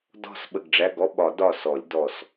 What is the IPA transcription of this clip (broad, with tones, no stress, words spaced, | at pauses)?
dɔ̤˧˩s ɓə˧˩ɡɖ͡ʐæ˧˥˧ɡɔ˧˥˧ɓɒ˨˩˦ dɒ˧˩sɔ˨˩˦lʲ dɔ˧˩s